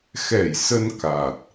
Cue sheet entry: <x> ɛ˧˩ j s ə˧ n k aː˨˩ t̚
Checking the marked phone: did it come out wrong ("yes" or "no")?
no